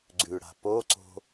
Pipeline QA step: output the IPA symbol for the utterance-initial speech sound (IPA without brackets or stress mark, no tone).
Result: ɡ͡ǀ